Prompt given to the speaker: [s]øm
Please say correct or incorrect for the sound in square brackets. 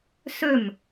correct